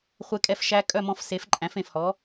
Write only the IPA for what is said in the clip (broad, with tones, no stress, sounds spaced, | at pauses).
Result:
χʷ e˧˥ kʼ ɛ˧˥ f ʃ æ˧˥ kʼ œ˥˨ m ɔ̃˧˥ f s e˩˥ f ǃʼ æ̃˩˥ f ẽ˩ f h ɔ˩˥